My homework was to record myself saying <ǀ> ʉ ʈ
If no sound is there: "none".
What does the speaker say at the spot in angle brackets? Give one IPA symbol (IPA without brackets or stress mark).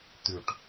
t̪